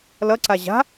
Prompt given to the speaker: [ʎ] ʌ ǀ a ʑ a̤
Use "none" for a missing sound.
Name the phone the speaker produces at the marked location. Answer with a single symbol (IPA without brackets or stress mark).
l